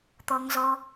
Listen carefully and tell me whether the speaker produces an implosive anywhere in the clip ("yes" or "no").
no